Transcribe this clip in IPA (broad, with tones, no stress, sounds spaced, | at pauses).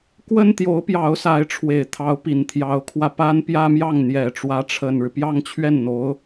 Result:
k w ə˥ n t̪ j o˧˥ ʊ̯ p j ɑ˧˥ ʊ̯ s a˧˥ ɪ̯ ʈ͡ʂʰ w e˨˩ ɪ̯ t̪ʰ ɑ˧˥ ʊ̯ p i˨˩ n t̪ʰ j ɑ˧˥ ʊ̯ kʰ w ä˧ p a˥ n p j ä˥ m j ɑ˥˩ ŋ n̪ j ɛ˨˩ ʈ͡ʂ w ä˧˥ ʈ͡ʂʰ ə˨˩ n ɻ ɻ̩˦ p j ɑ˥˧ ŋ t͡ɕʰ ɥ ɛ˥˩ n n̪ o˧˥ ʊ̯